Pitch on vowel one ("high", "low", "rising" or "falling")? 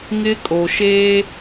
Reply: high